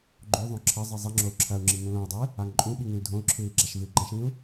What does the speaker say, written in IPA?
ɡ͡ǃ o ðˤ õ ǁʰ ɐ zˤ i zˤ i ŋ͡ǁ o u̯ ǁʰ ɐ u̯ ŋ͡ǁ i ŋ ũ l õ i̯ dˤ ɨː | a ŋ ǃʼ ũ ɓ i ŋ ĩ l dʱ õ u̯ ǁʰ ɨː i̯ ɡ͡ǁ a ʃ v ɨ i̯ ɡ͡ǃ ã ʃ ĩː u̯

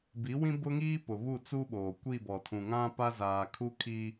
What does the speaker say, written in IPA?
b i˨˦ w ĩ˦ b ʊ˦ ŋ iː˦ p ʊ˨ β u˦˨ t͡s uː˦ ɓ oː˨ kʷ i˦˨ b ɔ˨ tʰ ũ˨ ŋ ã˦ p a˦ z aː˨ kʰ u˦ kʰ i˦

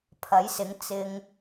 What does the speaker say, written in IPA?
pʰ ɐ˨˥ j s ɪ˨˥ ŋ t͡s ɪ˨ ŋ

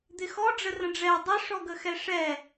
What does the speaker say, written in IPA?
d̪ ɪ x ɔ ɖ͡ʐ ə r ə̃ ɖ͡ʐ ɛ dˤ ə ʂ ɔ ɡ ə x ɛ ʂ ɛ

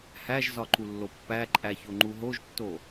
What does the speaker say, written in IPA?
h æ ʒ z ɒ ǃ u lː o pː æ ǃʼ æ ç o ŋ͡ǃ u ɦ o ʒ tː o

